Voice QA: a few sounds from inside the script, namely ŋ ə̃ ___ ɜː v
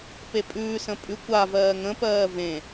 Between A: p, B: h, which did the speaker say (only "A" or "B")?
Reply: A